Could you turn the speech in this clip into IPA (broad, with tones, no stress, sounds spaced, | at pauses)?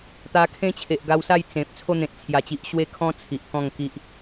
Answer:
t̪ a˧ kʰ ẽ˦ t͡ɕʰ e˨ ʔ ɡ a˧ w s a˥˧ j t͡s ẽ˨ p̚ t͡sʰ o˧ n̪ ẽ˨ t̚ t͡sʰ j a˨˩ t͡ɕ i˨ ʔ ɕ w e˦ kʰ ɔ̃˦ t͡sʰ i˨ ʔ k ɔ̃˥˧ ŋ k i˦ ʔ